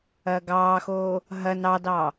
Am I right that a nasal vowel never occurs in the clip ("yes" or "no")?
yes